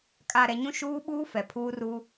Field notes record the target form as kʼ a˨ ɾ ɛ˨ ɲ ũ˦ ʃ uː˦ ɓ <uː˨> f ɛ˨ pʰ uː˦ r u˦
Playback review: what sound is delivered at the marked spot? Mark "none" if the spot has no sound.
uː˦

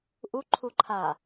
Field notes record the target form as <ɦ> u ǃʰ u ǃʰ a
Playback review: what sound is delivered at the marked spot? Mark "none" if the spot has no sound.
ʔ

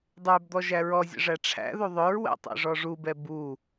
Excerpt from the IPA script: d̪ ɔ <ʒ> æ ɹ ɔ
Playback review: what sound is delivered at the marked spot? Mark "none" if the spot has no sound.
ʒ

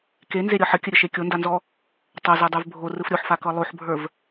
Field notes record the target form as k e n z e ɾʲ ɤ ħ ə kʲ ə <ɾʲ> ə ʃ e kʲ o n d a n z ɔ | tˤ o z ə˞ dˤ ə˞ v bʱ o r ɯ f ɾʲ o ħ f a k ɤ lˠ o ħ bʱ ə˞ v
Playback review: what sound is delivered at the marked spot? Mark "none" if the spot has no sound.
ɾʲ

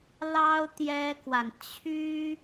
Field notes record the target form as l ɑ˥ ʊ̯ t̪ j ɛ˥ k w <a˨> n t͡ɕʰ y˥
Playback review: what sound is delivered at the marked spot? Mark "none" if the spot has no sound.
a˨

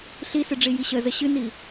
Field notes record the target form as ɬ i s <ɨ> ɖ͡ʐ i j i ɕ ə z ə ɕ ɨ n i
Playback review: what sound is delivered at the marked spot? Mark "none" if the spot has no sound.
ɨ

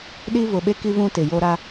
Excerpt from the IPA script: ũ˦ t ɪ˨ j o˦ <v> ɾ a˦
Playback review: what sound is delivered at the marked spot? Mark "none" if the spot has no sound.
none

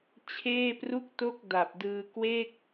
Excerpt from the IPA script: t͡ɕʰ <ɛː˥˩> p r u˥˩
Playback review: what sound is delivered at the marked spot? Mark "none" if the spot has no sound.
eː˥˩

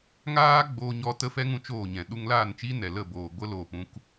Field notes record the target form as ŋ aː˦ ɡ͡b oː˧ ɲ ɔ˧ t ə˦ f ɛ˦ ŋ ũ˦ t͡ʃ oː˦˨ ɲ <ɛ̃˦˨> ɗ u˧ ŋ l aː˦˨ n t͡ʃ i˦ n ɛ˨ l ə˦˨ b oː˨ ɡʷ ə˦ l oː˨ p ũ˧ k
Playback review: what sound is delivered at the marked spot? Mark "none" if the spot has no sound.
ɛ̃˨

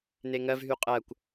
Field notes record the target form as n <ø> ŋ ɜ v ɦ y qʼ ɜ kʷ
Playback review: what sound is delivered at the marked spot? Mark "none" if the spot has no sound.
e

